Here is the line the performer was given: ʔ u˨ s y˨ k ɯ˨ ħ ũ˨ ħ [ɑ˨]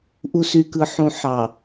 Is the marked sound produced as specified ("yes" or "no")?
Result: yes